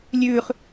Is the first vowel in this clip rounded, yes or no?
yes